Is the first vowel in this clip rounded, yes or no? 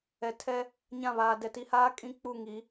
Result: no